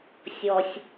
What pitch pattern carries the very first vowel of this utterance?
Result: low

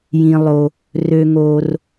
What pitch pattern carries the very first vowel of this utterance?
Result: low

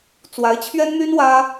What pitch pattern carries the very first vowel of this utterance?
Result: rising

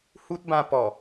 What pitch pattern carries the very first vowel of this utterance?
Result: high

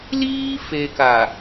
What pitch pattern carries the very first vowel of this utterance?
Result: high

